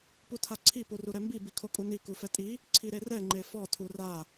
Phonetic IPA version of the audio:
p u tʰ a ǀʰ i p u r u ɾ ɛ m b i b i kʰ o kʼ u n i k u f ɛ tʼ i | ǀʰ i ɾ e r ɛ ŋ͡ǃ e f ɔ tʰ u r a

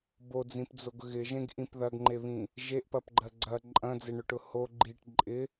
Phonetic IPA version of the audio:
b o d͡z ĩ p d͡z o ɡ ɣ ɪ ʒ ẽ ɡ ʔ ĩ p ð ɐ ɡ ŋ͡ǃ e β ĩ | ʒ e ʔ p ɐ p ɡ͡ǃ ɜ ɡ͡ǀ ɐ ǃʼ ɐ̃ d͡z e ɳ ʊ ʈ ʊ h o ɡ͡ǃ i ʈ ǃʼ ɪ

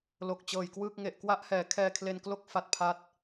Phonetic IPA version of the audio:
l o˨˩ k̚ t͡ɕ ɤː˨˩ j k w ɯː˥˩ k̚ ŋ e˨˩ ʔ k w a˥˩ ʔ h ɛː˩˦ kʰ ɛː˧ kʰ l e˧ n k l o˥˩ k̚ f a˦˥ t̚ pʰ a˦˥ t̚

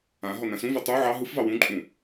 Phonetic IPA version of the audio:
ã ɦ ɔ n ã s ũ v ɛ tˤ u ʕ ɑ ɦ ɯ f v ɑ w ũ ǃʼ ũ

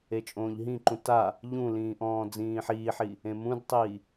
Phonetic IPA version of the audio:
e t͡ʃʼ õː ʎ ɦ ĩ ǃ ũ t a | ʎ ũ l ĩː ʔ ɔ̃ː d͡z ĩː ħ iː ħ i | ẽ m ũ d tˤ iː

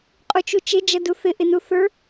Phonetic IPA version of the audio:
qʼ u t͡ʃ u t͡ʃ ɪ d͡ʒ ʌ d u θ ɪ ʔ ɪ n u θ ə˞

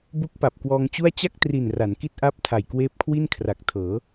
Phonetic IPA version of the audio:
b u˦˥ k̚ p a˨˩ p̚ k w ɔː˧ ŋ t͡ɕ u˥˩ a̯ t͡ɕ a˥˩ k̚ t r i˨˩ n r a˩˦ n k i˥˩ t̚ ʔ a˥˩ p̚ tʰ a˨˩ j k w eː˦˥ p̚ kʰ w i˥˩ n kʰ r a˨˩ k̚ tʰ ɤː˩˦

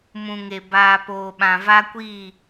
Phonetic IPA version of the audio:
m ũ˨ ŋ e˨ b aː˨ p oː˨ ɓ ã˨ v a˦ kʷ iː˦˨

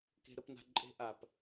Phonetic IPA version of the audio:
k e̤˦ ɾ ə˦ p n a̤˦ ǃʼ e̤˦ ʔ a˨ p

